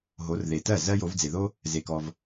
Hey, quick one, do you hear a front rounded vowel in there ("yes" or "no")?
no